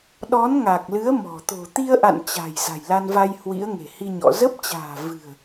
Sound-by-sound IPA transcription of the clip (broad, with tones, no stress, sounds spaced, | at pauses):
ɗ ɔ˨˦ n ŋ a˨˩ k̚ l ɨ˨˦ ə̯ m ɔ̤˨˩ t̪ o̤˨˩ t̪ i˧ ə̯ ʔ a̰˧˨ n t͡ɕ a̤˨˩ j z a̤˨˩ j l a˧ n v a˧ j h w ḭ˧˥ ə̯ ŋ e̤˨˩ h i˧ ɲ ɔ̰˧˨ z ə˦˥ p̚ t͡ɕ a̤ː˨˩ v ɨ̤˨˩ ə̯